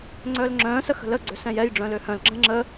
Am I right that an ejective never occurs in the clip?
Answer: yes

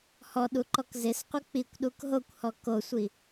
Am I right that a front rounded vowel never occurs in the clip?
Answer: yes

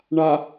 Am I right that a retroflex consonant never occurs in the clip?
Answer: no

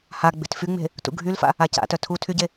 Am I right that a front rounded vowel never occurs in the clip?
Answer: no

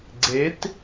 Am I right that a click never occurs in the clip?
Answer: no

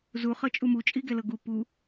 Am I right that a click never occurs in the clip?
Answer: yes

